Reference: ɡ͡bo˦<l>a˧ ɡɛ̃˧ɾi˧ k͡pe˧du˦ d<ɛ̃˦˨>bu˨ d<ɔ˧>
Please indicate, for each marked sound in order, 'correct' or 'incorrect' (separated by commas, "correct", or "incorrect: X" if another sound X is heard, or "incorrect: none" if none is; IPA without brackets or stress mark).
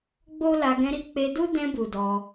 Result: correct, incorrect: ɛ̃˧, correct